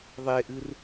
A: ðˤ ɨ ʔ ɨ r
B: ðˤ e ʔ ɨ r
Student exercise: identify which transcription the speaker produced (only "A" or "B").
B